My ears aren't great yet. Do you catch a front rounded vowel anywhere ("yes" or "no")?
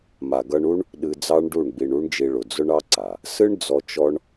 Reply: no